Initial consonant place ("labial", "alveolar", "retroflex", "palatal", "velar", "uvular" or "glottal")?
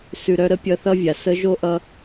alveolar